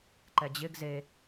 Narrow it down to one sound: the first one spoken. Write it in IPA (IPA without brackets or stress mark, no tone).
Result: ǃ